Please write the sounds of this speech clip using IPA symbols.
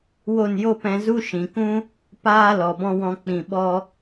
w o˦˨ n j o˦ p ɛ̃˧ z u˦ ʃ ĩ˨ k ũ˦ | p aː˦ l ɔ˨ b ɔ̃˧ w ɔ̃˧ k͡p ĩ˨ ɓ ɔ˧

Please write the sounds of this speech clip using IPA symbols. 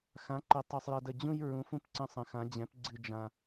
x ã˨˥ ǃ ə˨˥ tˤ o˦ sˤ j ʌ˦ d ə˦ d͡ʑ ũ˦ j ɹ ũ˨˥ f ũ˦ p ǀ ə̃˦ sˤ ə̃˨˥ x ã˨˥ d͡ʑ ɛ̃˨˥ p ɡ͡ǀ ɨ˦ d͡ʒ ã˦

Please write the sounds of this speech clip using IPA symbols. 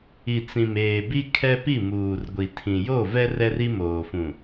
i˨ t͡s ĩ˨ m eː˨ b i˦ kʰ ɛ˦ p i˦˨ m uː˨ r ɡʷ i˨ tʰ ĩ˨ j o˦˨ v ɛ˦ r ɛ˦ r i˦ m oː˨ f ũ˨

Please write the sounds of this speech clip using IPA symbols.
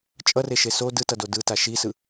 t͡ʃʼ ʌ r e ʃ e s o d ɯ t ʌ d o d ɯ t a ʃ i s ɯ

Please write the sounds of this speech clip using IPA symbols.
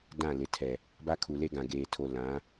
d ã˦˨ l ɪ˨ tʰ ɛ˨ | b a˦ kʰ u˨ l e˦ ɡ ã˨ ɡ eː˨ tʰ o˨ l ã˨˦

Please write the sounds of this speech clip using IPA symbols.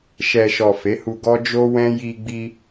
ʃ ɛ˨ ʃ ɔ˨ f e˨˦ h u˧ ɡ ɔ˦ d͡ʒ o˦ w ɛ̃˦ j i˧ ɡ͡b i˧

